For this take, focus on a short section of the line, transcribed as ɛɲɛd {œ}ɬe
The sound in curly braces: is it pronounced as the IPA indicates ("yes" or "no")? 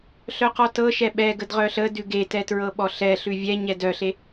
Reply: yes